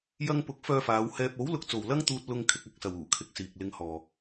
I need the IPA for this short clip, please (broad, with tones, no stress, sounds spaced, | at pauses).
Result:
j ɐ˧ ŋ p ʊ˨˥ k̚ f œː˧ f aː˨˧ w h ɛː˧ p̚ o˨˥ w l ʊ˨˥ k̚ t͡s o˨ w l ɐ˥ ŋ t̪ uː˧ t̚ l ʊ˧ ŋ kʰ ɪ˧ k̚ ɐ˧ k̚ s ɐ˨ w uː˨˩ kʰ ɪ˧ k̚ s iː˨ k̚ l ɪ˧ ŋ h ɔː˨